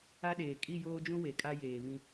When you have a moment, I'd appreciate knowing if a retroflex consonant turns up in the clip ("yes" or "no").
no